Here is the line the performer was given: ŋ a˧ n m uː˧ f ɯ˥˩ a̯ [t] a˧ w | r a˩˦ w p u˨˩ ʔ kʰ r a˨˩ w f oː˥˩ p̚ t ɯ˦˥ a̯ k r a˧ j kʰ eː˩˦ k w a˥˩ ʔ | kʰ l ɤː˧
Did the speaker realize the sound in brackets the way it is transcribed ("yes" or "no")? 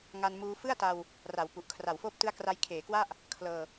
yes